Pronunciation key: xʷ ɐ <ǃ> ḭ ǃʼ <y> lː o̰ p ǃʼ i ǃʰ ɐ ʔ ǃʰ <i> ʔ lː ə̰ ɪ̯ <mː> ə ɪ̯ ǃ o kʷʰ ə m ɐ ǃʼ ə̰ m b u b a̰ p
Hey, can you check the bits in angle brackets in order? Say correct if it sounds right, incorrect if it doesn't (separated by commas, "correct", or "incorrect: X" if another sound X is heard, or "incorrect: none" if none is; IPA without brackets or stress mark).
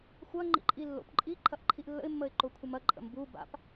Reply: incorrect: ŋ͡ǃ, incorrect: i, correct, correct